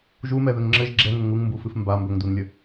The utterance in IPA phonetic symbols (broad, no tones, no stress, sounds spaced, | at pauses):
ʒ u m ɛ ð ɘ ŋ ŋ͡ǁ ɘ ʒ ɡ͡ǁ ɛ ŋ ʊ ŋ u ŋ m b u f ɨ f m b a m b ɵ ŋ d u n lʲ ə